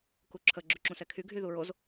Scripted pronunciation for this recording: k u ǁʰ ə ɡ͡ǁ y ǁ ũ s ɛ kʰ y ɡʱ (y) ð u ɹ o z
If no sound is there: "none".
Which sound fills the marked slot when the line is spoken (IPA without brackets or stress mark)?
y